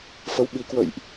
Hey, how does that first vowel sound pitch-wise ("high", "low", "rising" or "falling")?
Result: rising